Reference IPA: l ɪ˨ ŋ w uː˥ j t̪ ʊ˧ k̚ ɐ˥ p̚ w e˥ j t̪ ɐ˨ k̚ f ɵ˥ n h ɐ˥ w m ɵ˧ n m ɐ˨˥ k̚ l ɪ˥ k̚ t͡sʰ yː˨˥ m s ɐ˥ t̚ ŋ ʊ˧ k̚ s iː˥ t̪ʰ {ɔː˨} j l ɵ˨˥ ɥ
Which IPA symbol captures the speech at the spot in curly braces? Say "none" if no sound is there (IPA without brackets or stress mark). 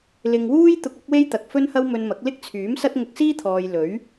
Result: ɔː˨